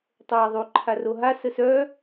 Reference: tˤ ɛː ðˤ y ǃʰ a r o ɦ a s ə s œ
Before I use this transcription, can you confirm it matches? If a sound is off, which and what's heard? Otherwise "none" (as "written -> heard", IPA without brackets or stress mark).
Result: none